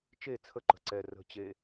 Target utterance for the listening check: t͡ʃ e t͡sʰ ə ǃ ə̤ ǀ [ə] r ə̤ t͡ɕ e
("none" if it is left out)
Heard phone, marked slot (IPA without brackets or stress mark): ɛ